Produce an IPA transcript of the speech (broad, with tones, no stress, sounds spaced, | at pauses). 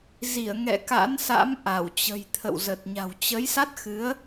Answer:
z i˧˩ ə̯ ŋ ɛ̰˧˨ k a̰˧˥ n s a̰˧˥ m ʔ a˧˩ w t͡ɕ ə̤˨˩ j t̪ʰ ə̰˧˨ w z ə˨˩ t̚ ɲ a̤˨˩ w t͡ɕ ə˨˦ j s a˦˥ t̚ x ɨ˨˦ ə̯